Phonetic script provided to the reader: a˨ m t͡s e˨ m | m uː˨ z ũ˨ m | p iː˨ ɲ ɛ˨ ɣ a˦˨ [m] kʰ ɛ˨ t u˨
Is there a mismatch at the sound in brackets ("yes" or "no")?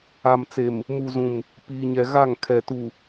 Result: yes